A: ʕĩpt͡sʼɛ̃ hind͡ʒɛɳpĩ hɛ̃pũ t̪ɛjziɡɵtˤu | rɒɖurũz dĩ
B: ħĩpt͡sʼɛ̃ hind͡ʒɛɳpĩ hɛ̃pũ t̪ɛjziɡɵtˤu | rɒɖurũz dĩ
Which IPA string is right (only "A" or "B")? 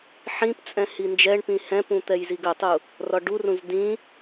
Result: B